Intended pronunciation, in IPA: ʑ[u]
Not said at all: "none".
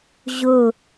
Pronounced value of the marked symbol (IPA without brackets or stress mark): ʊ